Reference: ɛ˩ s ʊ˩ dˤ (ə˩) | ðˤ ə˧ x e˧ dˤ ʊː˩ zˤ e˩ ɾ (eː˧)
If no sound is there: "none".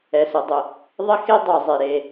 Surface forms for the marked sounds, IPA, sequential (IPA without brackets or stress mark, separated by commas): ʊ˩, eː˩